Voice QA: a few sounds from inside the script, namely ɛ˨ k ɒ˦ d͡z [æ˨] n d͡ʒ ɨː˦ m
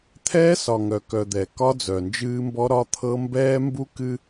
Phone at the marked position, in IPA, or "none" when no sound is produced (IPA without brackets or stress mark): œ˨